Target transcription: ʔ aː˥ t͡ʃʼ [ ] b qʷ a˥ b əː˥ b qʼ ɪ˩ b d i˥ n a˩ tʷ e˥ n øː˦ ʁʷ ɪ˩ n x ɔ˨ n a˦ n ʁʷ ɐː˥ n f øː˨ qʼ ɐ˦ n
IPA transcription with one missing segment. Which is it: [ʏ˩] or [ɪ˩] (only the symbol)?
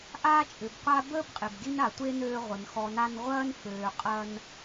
ʏ˩